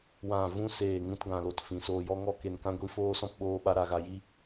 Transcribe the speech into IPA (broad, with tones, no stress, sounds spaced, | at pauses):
w ã˦˨ v ũ˦ s eː˦˨ ŋ ũ˦ t ɡ ã˧ l o˧ t f ĩ˨ s oː˧ j ɔ˦ ŋ ɔ˦ k e˧ n k ã˦ ɡʷ i˦ f oː˦ s ɔ̃˦ p ɓ oː˦ ɓ a˦ ɾ a˧ ɣ a˧ j i˦